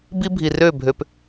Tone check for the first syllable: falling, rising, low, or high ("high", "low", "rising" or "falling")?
high